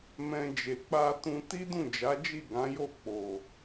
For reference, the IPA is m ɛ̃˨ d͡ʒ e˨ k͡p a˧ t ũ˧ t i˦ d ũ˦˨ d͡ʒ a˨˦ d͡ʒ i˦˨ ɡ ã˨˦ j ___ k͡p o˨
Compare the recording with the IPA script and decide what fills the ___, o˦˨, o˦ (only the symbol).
o˦˨